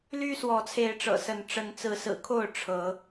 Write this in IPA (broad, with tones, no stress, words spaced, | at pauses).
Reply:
ly˦ swɔ˨˦t͡sʰe˨˦ɪ̯ʈ͡ʂɤ̰˨˩sə˨˦n ʈ͡ʂə˨˦nt͡sɹ̩˨˦sɹ̩˨˩kʰo˥˨ʊ̯ ʈ͡ʂʰɤ˨˦